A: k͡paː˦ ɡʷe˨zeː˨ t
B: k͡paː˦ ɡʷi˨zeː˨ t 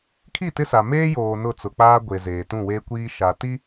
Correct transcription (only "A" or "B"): A